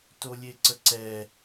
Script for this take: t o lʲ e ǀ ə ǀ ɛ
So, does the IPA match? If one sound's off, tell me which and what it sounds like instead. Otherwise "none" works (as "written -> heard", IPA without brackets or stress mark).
none